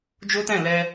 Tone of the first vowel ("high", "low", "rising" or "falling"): high